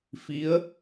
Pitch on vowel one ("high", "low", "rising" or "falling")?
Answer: rising